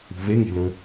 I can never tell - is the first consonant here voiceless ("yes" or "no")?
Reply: no